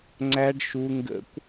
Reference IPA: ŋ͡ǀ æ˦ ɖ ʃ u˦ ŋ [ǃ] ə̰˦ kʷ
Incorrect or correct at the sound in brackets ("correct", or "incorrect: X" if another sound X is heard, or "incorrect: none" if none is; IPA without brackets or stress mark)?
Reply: incorrect: ɡ